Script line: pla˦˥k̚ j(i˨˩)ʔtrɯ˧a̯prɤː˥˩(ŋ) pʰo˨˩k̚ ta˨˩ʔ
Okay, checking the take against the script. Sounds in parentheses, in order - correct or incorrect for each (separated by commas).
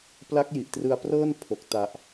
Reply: correct, incorrect